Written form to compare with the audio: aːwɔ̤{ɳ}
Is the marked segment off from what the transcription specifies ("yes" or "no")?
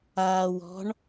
no